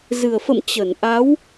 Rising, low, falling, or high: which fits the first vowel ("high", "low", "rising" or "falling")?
low